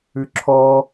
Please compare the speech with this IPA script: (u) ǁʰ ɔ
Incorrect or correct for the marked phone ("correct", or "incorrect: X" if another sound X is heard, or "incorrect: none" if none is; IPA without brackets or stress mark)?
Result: incorrect: ʉ